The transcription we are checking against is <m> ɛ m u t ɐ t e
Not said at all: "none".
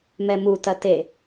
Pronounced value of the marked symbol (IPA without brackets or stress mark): m